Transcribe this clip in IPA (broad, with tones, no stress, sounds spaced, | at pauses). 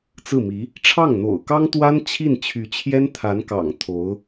t͡s ɹ̩˥˩ m i˧˥ | ʈ͡ʂʰ ɑ˥˩ ŋ n̪ o̰˨˩ ʊ̯ k ɑ˥ ŋ t̪ w a˥ n t͡ɕʰ i˥˩ n t͡ɕʰ y˧˥ t͡ɕʰ j ɛ˥ n t̪ʰ a˧˥ n k ɑ̰˨˩ ŋ t̪ʰ o˧˥ ʊ̯